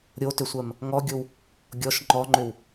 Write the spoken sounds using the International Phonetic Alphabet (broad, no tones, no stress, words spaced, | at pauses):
ɾʲotʏsʷɜm | ŋɔɡʲow | ɡʲɔʃ ŋ͡ǃɔŋ͡ǃʏw